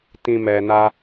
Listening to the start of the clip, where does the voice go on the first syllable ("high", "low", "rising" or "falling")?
low